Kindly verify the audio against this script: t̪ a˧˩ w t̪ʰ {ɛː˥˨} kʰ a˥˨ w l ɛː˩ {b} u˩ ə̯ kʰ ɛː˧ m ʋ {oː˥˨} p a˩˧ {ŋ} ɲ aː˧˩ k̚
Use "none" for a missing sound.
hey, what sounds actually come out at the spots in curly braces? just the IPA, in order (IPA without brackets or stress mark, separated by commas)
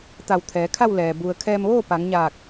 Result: ɛː˩˧, b, oː˥˨, ŋ